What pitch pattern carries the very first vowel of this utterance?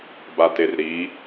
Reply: low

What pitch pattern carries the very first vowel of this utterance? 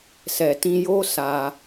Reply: low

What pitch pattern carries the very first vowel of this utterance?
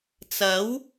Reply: rising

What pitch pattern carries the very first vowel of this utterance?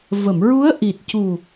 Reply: low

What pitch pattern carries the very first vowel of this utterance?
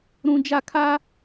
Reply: high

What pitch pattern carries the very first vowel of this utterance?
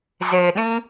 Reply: low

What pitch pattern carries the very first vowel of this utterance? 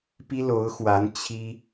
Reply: high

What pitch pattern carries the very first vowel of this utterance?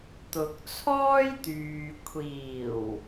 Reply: low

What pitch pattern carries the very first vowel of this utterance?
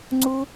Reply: high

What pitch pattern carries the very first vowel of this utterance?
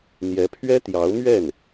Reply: rising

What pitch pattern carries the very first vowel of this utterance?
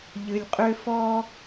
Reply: low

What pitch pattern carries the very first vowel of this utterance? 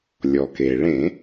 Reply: low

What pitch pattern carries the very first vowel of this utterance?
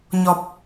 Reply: low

